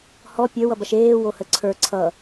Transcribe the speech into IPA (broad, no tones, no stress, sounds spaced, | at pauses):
h ɔ pʲ ə˞ w ʌ b ɐ ʃ eː w o h ə ǀʰ ə˞ ǀʰ ʌ